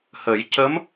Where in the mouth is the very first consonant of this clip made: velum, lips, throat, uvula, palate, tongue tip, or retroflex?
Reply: throat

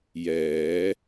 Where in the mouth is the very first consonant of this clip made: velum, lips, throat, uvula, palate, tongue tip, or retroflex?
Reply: palate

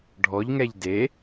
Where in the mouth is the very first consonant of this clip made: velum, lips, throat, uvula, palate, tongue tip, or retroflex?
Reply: retroflex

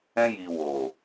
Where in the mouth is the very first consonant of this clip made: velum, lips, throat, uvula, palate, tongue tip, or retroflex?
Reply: palate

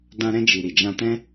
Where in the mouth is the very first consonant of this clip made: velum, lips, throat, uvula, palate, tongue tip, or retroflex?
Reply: tongue tip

